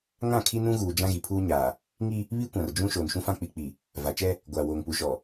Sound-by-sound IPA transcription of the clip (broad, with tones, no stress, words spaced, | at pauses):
ŋã˦˨kʰi˦nũ˦ɣuː˨ d͡ʒã˦ɣi˨pʰuː˦ɲaː˨ | ŋi˦ | βi˦kʷã˨rd͡ʒũ˦ ʃoː˨nʃũ˦fã˦ k͡pi˨k͡pi˨ | va˨t͡ʃɛ˦ | ɡʷaː˨woː˨ŋpu˨ʃɔ˨